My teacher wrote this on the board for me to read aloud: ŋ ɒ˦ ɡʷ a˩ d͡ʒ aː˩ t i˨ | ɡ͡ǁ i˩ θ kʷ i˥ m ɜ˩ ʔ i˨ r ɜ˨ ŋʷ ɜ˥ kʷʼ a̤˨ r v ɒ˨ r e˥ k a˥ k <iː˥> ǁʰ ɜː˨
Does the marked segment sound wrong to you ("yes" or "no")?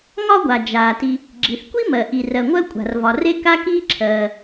no